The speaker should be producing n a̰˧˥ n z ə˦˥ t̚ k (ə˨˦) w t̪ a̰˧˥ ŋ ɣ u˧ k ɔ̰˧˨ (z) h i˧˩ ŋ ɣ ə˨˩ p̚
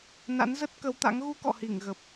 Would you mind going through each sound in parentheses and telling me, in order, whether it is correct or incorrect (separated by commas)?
correct, incorrect